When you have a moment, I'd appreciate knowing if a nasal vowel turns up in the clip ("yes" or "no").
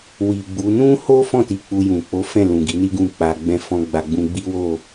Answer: yes